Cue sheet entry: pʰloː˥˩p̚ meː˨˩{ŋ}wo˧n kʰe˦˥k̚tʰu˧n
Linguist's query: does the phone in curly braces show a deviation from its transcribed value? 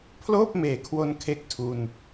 yes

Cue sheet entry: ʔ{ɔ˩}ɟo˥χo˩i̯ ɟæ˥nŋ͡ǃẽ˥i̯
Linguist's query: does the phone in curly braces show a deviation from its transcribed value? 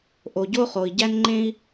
yes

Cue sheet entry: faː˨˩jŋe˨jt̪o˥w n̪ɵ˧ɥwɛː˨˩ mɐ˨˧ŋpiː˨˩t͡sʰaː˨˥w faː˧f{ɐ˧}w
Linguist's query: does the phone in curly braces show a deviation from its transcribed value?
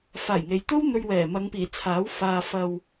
no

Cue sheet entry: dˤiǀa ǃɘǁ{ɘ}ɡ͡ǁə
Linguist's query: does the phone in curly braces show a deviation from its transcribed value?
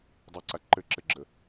no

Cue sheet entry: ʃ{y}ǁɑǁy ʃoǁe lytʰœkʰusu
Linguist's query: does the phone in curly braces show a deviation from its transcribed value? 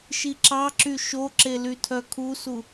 yes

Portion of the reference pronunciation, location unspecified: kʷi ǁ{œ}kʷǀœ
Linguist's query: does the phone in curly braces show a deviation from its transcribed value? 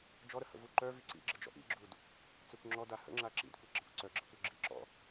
yes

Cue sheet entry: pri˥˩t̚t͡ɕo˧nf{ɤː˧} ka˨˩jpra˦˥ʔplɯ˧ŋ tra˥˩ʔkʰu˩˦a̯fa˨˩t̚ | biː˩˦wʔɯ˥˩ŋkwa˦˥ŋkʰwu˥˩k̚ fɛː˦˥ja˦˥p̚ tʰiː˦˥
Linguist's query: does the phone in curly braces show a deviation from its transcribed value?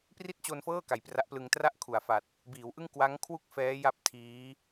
yes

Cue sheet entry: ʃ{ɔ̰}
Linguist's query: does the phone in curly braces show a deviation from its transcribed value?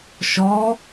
yes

